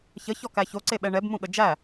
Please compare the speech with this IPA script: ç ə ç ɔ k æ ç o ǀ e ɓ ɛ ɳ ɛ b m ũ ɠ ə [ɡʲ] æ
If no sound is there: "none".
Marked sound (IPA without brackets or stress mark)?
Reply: d͡ʒ